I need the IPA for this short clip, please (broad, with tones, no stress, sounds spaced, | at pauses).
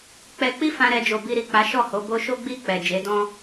k͡p ɛ˧ k͡p i˦ f ã˧ ɾ ɛ˧ d͡ʒ o˨ b i˧ ɾ i˨ k͡p a˨˦ ʃ ɔ˦˨ h o˨˦ b o˦ ʃ o˦ ɡ͡b i˦˨ k͡p ɛ˨ d͡ʒ e˨˦ d ɔ̃˦